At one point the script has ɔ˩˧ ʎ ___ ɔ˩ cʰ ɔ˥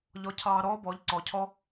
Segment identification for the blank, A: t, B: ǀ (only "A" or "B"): B